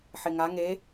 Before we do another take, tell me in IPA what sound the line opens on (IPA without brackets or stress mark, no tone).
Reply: ħ